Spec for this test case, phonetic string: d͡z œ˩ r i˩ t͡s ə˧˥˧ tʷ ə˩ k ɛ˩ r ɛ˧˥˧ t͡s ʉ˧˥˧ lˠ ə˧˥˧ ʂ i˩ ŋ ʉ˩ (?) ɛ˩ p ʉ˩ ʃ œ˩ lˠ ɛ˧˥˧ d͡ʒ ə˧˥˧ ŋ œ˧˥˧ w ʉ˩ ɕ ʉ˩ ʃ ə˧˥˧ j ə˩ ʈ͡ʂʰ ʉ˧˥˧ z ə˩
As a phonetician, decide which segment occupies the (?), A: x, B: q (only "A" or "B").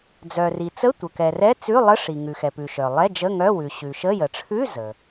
A